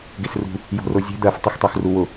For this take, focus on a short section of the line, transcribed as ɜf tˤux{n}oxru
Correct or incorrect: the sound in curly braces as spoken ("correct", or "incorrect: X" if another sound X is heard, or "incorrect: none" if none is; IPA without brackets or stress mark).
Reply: incorrect: tˤ